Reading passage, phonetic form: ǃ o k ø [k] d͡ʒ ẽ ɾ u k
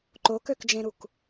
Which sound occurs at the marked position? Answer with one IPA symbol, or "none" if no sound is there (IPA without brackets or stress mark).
k